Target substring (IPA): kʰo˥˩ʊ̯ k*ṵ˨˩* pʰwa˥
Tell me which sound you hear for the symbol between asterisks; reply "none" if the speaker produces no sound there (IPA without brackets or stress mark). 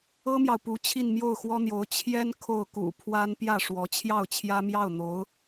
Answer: ṵ˨˩